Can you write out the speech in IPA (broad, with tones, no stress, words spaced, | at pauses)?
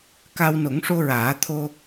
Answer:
ka˧wno˨˩˦ŋʂo˧ɹaː˨˩˦ t̪ʰo˧